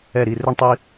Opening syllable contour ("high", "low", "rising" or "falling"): falling